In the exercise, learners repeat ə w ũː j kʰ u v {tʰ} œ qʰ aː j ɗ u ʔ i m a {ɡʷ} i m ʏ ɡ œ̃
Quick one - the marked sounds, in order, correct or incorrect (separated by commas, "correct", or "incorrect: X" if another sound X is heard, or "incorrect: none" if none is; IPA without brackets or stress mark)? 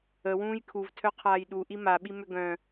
correct, incorrect: ɓ